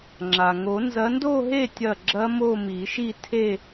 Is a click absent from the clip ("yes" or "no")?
no